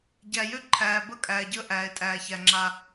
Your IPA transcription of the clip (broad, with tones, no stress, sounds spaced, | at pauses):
ɟ æ˨ j ø˦ ǃʰ æː˨ b ə˦˨ kʼ æː˨ ɟ əː˦ ʔ æː˨ ɪ̯ tʼ æː˨ ç æ˨ ŋ͡ǁ a˦